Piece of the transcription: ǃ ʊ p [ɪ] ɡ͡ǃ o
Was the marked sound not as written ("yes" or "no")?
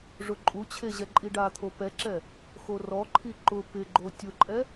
no